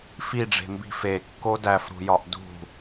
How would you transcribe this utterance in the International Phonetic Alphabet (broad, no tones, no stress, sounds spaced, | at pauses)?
f i ɖ͡ʐ e̤ m b i̤ f e kː o d æ f ɾ ṳ j ɒ ʔ d ṳ